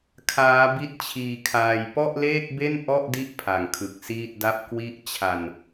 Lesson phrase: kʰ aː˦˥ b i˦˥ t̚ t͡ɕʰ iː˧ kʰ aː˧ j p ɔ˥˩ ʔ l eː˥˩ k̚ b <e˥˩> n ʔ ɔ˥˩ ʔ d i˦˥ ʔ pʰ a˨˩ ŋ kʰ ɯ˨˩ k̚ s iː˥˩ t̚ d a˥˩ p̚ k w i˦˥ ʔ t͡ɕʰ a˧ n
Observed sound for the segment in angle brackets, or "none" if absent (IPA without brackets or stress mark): e˥˩